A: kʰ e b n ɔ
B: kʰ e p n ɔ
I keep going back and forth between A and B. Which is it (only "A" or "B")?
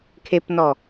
B